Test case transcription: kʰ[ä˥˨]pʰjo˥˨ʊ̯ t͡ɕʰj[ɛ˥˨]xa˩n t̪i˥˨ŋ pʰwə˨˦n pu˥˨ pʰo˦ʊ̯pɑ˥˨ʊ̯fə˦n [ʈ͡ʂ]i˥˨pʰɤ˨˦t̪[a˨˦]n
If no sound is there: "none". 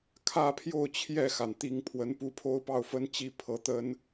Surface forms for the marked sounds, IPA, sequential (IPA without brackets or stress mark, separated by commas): ä˥˨, ɛ˥˨, t͡ɕ, ə˨˦